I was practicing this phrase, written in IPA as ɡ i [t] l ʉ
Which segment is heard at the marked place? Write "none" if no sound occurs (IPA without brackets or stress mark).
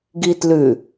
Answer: t